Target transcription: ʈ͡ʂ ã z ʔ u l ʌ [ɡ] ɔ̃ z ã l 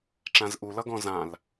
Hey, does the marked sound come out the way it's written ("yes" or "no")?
yes